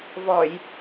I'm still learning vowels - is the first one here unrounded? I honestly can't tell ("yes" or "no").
no